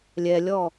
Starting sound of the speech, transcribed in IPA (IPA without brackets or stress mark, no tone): lʲ